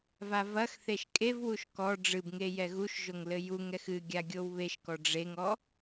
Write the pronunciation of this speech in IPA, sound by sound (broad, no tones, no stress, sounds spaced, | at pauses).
v a v ɐ x θ e ʃ kʼ e v w u ʃ k ɔ ɖ͡ʐ ɨ b ŋ e j ɛ ɣ u ʃ ʒ o ŋ l ɘ j u ŋ ɛ x ɨ ɡʲ a ɡʲ o w β e ʃ k ɔ ɖ͡ʐ e ŋ ɔ